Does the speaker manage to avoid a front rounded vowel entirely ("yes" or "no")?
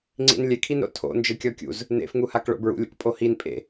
yes